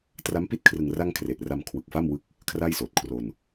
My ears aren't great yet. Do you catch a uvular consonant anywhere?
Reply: no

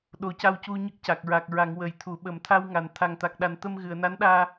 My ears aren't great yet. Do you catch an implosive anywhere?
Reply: yes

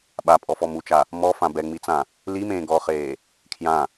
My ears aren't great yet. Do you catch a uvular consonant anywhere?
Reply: yes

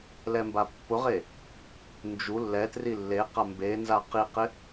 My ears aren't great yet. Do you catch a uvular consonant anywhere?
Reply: yes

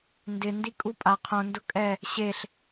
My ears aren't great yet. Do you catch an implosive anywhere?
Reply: no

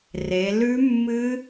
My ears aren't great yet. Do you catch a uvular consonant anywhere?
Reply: no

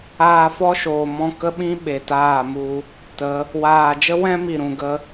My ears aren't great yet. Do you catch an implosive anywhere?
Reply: yes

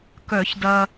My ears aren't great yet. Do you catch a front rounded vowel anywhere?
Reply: yes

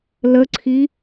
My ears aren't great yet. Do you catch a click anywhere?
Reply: yes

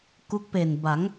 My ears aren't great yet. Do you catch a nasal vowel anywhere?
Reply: no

